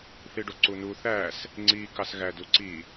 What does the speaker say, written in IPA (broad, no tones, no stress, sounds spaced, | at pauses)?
θ i ɖ o ǀ u n u θ æ s | ŋ͡ǀ i k ɑ s ɣ æ d u ǀ i